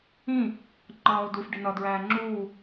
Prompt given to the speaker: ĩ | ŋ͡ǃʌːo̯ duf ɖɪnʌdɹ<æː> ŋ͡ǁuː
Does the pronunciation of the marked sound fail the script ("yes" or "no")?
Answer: no